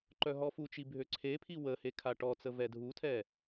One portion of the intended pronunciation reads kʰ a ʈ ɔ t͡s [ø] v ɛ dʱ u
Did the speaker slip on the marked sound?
yes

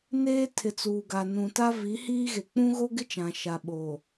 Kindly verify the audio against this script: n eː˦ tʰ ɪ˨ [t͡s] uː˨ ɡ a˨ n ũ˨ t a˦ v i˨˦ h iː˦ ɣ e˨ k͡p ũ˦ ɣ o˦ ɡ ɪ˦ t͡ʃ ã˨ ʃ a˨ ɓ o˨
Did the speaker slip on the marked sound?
no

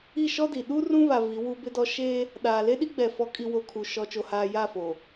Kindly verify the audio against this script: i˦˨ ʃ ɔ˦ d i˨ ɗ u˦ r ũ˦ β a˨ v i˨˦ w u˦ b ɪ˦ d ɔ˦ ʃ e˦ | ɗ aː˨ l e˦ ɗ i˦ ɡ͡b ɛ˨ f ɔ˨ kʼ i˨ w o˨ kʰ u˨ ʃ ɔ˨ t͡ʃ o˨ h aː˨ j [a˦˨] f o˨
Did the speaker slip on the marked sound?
no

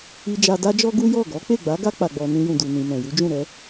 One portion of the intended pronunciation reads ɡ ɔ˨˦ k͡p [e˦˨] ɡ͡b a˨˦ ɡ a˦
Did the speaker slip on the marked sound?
no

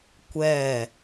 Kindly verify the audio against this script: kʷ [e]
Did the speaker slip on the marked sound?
yes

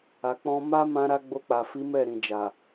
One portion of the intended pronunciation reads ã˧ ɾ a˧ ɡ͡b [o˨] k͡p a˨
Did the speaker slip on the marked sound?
yes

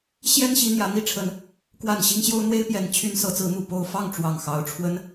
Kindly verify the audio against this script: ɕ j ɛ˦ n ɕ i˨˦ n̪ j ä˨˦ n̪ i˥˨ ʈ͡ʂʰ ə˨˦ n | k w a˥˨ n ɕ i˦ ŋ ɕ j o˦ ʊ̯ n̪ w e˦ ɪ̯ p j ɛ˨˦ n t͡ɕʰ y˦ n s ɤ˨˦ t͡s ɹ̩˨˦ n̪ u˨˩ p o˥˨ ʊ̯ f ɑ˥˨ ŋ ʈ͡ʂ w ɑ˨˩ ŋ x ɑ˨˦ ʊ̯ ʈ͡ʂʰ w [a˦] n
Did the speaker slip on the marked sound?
yes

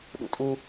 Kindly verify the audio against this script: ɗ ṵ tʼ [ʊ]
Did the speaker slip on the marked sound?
yes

